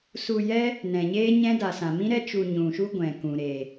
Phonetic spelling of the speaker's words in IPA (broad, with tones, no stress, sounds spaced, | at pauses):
s u˧ j ɛ˦ | n ɛ̃˨ ɲ eː˦ ɲ ɛ̃˦ d a˨ s ã˨ m ĩ˦ ɾ ɛ˦ t͡ʃ u˧ ɲ ũ˨ ʃ u˦ ɡʷ ɛ̃˨ k ũ˨ ɾ e˨